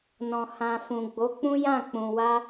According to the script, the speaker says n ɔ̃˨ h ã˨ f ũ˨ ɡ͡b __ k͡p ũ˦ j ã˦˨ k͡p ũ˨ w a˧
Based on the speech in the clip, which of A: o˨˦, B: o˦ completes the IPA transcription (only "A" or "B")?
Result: A